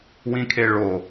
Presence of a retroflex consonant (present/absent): present